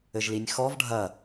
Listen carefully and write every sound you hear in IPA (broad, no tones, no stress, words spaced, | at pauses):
ɘʒlinʲxɔv ɖʱɐ